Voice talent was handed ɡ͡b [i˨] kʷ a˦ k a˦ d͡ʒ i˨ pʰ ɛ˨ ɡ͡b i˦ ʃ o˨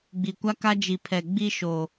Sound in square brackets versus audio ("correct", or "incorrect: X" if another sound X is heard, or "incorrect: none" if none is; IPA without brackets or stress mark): correct